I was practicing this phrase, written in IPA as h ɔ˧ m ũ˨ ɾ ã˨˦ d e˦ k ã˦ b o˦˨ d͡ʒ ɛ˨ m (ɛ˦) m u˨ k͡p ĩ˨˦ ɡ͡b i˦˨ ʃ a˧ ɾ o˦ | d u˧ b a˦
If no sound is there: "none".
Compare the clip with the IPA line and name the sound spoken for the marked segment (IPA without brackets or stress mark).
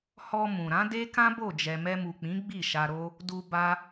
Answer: ɛ˧